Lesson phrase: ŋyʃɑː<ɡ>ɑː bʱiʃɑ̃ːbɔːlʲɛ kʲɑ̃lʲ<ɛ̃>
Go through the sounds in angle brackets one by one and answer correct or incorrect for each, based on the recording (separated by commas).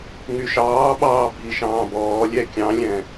incorrect, correct